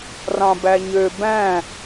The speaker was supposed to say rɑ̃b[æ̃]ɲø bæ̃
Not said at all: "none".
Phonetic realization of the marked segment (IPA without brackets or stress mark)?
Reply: æ